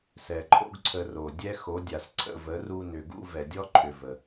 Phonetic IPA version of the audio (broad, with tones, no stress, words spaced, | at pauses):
sɛ˨ǃʰo̰˦ɡǀʰə˧ro˨ dʲɛ˦xo˨˦dʲa˨s ǀʰə̰˦˨və˨˦ru˧ nʏ˨ ɡṵ˦ vɛ˨dʲɔ˦ǃʰʏ˨ və˨